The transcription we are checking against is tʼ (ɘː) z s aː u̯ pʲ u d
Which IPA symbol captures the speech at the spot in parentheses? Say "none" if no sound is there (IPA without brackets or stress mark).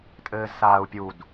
ɘː